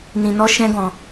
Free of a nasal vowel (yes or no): no